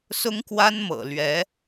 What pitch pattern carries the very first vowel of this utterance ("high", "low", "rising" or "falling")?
high